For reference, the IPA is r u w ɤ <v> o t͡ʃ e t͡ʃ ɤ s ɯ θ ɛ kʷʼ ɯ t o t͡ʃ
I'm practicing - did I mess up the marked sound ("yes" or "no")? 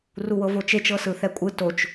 no